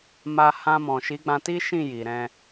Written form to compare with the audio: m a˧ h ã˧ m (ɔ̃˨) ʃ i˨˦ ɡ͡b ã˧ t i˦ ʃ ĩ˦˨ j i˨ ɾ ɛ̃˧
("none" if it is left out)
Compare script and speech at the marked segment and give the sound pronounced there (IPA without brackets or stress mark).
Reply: ɔ̃˨